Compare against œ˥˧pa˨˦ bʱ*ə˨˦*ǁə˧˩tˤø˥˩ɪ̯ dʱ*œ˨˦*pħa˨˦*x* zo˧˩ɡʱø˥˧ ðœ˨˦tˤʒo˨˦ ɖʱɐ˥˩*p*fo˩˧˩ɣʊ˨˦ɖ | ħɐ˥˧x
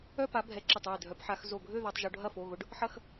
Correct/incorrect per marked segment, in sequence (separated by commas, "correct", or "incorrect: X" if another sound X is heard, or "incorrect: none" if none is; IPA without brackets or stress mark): incorrect: ɛ˨˦, correct, correct, incorrect: none